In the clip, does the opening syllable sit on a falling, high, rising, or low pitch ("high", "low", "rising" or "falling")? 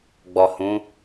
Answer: low